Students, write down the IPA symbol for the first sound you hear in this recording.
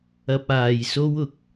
ɐ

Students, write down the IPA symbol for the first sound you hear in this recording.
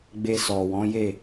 ɡ͡b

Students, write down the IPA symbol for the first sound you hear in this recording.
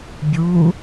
bʲ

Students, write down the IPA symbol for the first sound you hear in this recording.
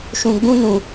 ʃ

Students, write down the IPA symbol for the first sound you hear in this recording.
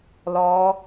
l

